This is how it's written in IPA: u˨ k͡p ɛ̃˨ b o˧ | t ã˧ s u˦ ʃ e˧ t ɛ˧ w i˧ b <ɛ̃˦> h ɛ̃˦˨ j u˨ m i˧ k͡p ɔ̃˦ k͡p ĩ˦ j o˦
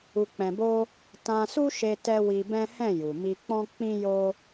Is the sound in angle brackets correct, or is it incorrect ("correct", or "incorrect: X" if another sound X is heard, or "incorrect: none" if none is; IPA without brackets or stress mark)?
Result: correct